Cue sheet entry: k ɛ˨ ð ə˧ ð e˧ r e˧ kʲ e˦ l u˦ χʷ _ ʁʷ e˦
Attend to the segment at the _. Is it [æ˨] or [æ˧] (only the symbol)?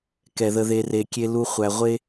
æ˧